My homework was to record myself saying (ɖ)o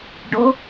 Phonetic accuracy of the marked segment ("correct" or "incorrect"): correct